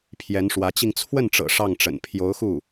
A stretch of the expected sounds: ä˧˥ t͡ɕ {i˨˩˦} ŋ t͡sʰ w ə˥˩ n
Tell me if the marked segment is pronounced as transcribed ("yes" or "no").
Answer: no